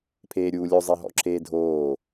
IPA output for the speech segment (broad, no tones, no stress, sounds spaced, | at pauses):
pʰ eː ɾʲ uː lʲ o zˤ e ɦ ɔ̰ ǁʰ eː dʱ oː